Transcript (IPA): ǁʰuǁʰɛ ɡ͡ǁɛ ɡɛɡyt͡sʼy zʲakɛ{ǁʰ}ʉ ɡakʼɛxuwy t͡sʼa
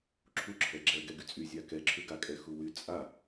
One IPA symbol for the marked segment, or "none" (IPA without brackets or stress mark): ǁʰ